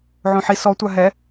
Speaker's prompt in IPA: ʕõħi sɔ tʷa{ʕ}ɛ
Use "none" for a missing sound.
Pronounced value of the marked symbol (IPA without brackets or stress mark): ɦ